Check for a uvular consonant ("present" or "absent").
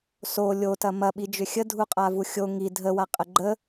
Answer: present